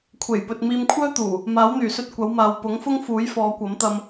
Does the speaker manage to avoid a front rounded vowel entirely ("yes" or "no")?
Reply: no